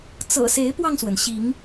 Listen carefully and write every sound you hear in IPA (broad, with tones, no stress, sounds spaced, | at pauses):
t͡s ɤ̰˨˩ s e˨˦ ɪ̯ p w ɑ˧ ŋ s w ə˩ n ɕ i˨˦ ŋ